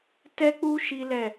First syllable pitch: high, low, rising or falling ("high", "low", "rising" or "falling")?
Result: high